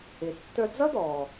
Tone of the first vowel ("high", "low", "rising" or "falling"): low